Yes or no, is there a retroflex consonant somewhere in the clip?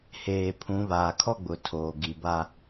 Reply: no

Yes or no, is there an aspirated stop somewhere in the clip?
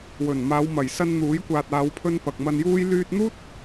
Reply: yes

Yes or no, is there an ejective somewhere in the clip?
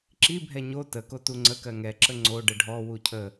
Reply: no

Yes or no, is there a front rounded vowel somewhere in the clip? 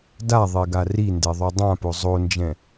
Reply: no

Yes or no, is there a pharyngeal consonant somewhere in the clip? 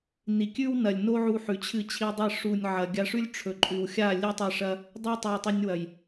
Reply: yes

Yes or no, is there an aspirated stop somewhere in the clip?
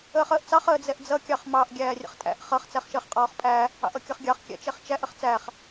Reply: no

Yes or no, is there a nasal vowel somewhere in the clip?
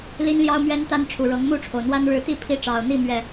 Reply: no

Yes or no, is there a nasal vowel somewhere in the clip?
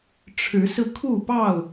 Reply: no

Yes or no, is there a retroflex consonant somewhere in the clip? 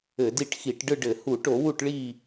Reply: yes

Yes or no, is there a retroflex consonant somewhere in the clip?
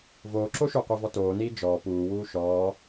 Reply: no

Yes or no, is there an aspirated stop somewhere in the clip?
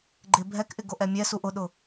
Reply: no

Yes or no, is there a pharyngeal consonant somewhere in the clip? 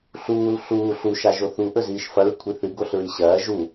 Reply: no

